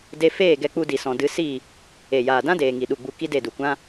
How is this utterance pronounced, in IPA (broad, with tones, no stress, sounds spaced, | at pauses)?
d e˧ f eː˦˨ ɡ ɛ˧ k͡p u˧ d i˨ s ɔ̃˨ d ɨ˨˦ s i˦˨ | e˨ j aː˨ d ã˦ d eː˨ ŋ i˨ ɗ u˨ ɡ͡b u˧ k i˦ d e˦˨ d u˨ kʷ ã˦